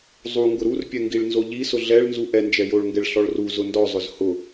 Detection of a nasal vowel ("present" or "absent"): absent